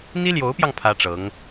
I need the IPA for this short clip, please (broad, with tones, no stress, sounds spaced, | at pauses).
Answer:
n̪ i˥ l j o˧˥ ʊ̯ p j ɑ˧ ŋ pʰ ä˥ ʈ͡ʂ ɤ˧˥ ŋ